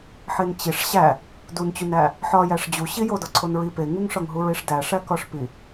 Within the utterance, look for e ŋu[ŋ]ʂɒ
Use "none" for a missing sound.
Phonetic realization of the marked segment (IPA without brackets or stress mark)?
ŋ